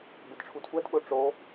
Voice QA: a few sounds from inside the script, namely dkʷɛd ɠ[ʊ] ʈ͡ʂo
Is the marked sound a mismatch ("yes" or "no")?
no